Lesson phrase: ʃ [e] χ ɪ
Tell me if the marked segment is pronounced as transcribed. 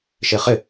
yes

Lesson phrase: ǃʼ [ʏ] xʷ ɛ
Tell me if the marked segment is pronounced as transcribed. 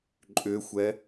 yes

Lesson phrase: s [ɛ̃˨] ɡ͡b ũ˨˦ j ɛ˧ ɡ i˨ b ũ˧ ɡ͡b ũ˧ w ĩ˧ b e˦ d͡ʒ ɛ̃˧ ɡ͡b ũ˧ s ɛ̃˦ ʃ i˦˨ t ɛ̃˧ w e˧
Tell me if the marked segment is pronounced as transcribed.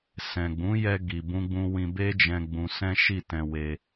yes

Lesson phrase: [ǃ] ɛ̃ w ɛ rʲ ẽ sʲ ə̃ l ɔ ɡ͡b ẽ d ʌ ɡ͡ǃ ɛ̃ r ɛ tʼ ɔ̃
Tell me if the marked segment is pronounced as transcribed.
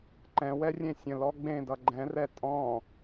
yes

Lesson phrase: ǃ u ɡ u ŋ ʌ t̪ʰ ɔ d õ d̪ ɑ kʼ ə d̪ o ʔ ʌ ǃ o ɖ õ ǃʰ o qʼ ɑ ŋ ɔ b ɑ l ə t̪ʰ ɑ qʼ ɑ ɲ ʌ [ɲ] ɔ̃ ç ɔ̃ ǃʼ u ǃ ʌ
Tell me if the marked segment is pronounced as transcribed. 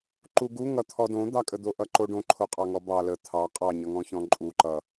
no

